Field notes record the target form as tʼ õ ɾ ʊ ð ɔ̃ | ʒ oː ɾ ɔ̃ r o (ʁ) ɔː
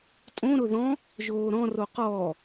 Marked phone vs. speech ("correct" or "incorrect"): incorrect